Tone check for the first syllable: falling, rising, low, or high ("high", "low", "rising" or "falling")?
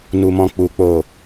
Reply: low